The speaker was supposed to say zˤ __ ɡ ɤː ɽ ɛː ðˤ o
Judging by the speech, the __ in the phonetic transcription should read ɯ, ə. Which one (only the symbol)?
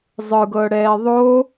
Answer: ɯ